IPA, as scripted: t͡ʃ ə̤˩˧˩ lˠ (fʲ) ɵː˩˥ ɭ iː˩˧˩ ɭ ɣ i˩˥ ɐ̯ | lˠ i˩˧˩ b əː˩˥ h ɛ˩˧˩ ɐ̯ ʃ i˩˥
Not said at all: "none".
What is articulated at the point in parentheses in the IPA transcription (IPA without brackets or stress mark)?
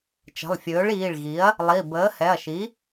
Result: fʲ